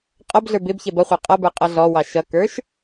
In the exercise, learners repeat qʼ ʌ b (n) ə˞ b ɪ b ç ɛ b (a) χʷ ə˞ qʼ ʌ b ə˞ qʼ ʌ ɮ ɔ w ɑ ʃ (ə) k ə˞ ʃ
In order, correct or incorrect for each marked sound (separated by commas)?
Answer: incorrect, incorrect, incorrect